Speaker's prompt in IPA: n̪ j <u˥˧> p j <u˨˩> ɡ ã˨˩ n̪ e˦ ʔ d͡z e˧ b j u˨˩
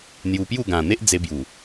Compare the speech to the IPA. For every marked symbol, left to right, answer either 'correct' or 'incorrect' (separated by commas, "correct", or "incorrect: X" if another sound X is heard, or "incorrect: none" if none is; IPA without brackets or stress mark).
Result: incorrect: u˧, incorrect: u˥˧